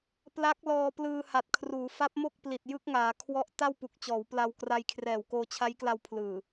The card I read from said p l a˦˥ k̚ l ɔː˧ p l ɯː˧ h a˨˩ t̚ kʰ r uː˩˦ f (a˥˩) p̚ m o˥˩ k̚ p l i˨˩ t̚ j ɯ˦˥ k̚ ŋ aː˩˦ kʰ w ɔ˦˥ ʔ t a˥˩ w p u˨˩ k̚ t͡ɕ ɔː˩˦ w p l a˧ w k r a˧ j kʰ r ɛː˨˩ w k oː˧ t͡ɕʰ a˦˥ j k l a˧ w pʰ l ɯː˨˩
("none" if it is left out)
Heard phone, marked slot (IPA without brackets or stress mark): a˦˥